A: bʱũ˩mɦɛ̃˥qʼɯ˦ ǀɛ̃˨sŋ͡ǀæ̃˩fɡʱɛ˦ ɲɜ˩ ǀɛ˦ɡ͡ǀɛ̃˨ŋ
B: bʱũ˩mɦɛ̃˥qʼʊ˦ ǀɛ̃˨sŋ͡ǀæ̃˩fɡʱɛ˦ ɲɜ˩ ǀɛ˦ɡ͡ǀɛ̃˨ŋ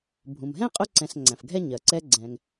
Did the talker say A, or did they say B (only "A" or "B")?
B